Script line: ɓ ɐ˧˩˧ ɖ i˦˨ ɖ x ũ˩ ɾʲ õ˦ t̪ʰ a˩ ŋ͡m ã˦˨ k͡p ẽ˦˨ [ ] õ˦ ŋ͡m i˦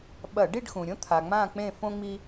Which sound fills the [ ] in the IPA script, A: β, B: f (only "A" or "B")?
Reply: B